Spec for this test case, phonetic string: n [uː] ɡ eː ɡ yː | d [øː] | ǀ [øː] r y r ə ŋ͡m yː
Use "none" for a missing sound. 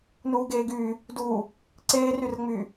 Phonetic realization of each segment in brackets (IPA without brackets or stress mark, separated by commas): uː, uː, eː